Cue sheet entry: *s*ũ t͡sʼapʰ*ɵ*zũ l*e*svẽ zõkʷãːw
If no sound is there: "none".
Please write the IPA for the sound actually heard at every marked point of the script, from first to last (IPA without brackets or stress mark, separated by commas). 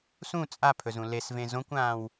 s, ɵ, e